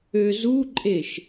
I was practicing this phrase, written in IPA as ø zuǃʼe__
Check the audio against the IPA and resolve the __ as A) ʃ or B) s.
A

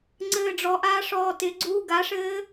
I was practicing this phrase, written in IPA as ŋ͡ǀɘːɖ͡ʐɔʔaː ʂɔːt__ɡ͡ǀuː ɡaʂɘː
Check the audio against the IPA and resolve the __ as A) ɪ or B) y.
A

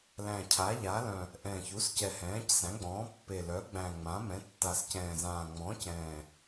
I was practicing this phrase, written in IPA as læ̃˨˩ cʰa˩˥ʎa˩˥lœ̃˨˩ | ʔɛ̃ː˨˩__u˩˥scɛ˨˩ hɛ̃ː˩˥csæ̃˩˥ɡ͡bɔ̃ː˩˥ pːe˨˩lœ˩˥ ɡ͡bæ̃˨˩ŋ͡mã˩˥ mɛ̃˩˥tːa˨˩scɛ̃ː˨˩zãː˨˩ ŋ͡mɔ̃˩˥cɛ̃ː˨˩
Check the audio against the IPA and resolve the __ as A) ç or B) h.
A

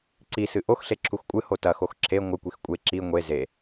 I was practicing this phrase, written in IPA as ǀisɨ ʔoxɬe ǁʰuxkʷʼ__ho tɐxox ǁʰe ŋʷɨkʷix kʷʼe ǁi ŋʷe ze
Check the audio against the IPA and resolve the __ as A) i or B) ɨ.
B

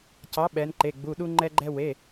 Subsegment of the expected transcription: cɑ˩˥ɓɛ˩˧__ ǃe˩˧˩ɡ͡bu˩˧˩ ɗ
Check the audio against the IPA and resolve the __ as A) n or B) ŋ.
A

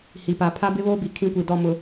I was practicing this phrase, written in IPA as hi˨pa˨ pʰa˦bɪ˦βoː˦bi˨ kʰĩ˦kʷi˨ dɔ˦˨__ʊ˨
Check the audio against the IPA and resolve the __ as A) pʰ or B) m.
B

